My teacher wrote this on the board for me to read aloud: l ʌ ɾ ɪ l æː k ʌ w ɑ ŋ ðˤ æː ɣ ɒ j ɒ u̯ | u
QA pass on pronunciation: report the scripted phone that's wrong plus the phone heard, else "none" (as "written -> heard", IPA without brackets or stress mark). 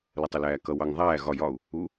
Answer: ɾ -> tˤ